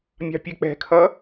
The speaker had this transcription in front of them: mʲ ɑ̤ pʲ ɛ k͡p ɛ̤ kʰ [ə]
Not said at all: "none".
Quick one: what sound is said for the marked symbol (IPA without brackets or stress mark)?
ʌ